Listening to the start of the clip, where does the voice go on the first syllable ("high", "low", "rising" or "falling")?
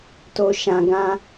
low